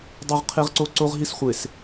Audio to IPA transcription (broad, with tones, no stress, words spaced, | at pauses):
dˤo˦ʁqʰe˦ʁǀo˦ ǀo˦ʁɦi˦sχʷe˨s